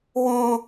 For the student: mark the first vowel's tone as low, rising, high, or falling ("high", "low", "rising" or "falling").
high